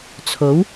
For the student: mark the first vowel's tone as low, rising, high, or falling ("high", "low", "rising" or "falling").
rising